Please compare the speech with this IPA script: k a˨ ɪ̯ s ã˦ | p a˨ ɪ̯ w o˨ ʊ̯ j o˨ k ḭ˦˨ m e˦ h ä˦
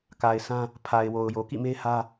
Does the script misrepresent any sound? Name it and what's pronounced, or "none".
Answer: p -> pʰ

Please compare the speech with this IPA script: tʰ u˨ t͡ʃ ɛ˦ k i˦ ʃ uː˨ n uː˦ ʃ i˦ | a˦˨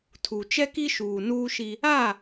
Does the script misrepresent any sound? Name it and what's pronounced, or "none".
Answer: none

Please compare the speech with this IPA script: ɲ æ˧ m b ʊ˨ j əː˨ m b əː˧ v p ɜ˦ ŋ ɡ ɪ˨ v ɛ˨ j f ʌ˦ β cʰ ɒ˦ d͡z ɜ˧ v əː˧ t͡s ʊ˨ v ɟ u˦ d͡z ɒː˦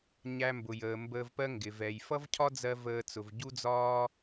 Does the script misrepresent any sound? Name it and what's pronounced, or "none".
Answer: β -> v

